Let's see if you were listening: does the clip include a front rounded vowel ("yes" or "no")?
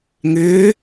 yes